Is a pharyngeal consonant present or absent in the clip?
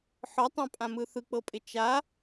present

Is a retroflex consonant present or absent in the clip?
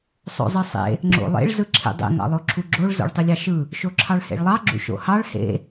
present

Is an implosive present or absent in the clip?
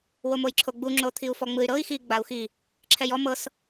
absent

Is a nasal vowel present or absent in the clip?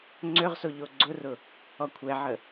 absent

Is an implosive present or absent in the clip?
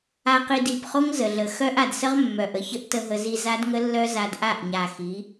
absent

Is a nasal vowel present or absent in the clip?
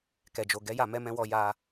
present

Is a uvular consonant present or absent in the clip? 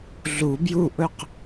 present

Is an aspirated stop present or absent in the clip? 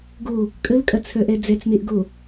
present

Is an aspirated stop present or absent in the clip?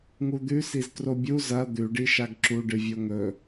absent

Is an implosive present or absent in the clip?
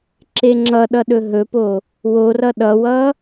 present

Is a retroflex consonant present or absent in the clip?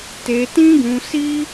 absent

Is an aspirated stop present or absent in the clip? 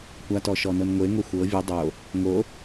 absent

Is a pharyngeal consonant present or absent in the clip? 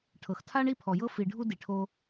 absent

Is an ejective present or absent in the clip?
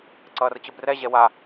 absent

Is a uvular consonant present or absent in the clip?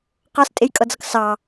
present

